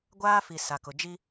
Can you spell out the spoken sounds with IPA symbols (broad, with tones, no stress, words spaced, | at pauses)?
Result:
ɡʷaː˦fi˨ sa˨kʊ˨ d͡ʒi˦